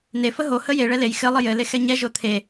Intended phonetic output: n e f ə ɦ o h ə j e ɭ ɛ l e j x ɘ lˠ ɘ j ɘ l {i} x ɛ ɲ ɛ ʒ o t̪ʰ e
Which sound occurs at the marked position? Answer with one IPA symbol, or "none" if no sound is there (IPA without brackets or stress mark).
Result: e